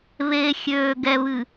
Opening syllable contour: low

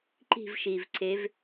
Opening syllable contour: falling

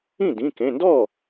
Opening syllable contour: falling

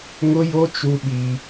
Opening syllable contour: high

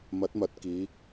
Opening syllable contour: rising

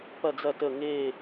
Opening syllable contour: falling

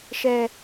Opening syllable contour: high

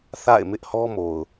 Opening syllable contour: falling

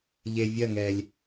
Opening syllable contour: low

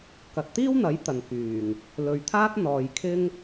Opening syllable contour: low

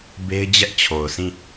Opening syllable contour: high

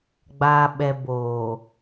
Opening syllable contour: low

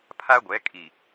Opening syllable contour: high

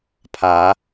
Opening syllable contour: rising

